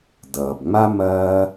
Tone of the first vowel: low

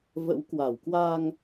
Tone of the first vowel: rising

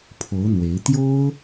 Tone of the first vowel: rising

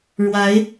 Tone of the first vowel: rising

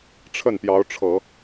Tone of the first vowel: falling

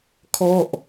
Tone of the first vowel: falling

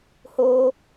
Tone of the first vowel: high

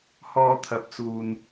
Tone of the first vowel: high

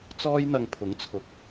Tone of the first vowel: high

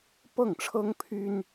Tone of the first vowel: falling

